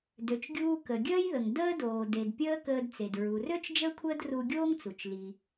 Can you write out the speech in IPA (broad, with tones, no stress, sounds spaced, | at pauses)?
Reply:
d ø˩ t͡ʃ ɡʲ uː˧ k ə˩ ɡʲ əː˥ j ð ə˩ ŋ d əː˥ d oː˩ d e˩ d pʲ əː˥ k əː˧ d t͡s e˩ d ɹ u˩ r ø˥ t͡ʃ d͡ʒ əː˥ kʷʰ əː˥ d r u˧ ɡʲ oː˥ ŋ t͡s u˩ t͡ʃ l i˩